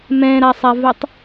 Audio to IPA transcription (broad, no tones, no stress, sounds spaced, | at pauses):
m ɛ̃ ɾ a sˤ a v ɛ tˤ